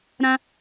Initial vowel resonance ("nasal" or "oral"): nasal